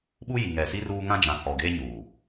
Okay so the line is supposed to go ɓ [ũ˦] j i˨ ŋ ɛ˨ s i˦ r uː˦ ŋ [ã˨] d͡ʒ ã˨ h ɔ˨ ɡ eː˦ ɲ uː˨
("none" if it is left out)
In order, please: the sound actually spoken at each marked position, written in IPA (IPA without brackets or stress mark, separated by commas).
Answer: u˦, ã˦